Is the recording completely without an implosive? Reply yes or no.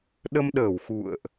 no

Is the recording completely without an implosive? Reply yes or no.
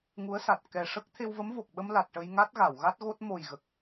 no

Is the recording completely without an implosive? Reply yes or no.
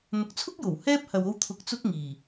yes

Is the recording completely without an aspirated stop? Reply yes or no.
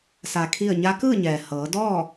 no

